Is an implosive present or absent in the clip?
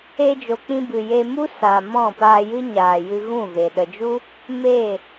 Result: present